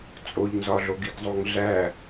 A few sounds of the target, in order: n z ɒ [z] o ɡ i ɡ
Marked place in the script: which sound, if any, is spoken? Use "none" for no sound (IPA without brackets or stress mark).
ɮ